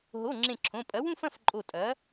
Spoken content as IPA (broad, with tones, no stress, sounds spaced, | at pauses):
ɦ o˩˧˩ ŋ͡ǁ ẽ˧˩ ǁʰ õ˩˧˩ pʼ ɐ˩˥ w ũ˥˧ f ɐ̃˩˧˩ f ǃʼ o˧˩ tʼ ɐ˩˥